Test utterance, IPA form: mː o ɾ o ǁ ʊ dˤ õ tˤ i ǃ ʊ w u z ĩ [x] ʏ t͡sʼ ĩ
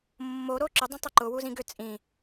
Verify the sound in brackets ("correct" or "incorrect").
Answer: incorrect